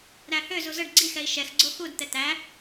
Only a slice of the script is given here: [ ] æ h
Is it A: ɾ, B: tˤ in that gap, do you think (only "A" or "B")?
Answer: A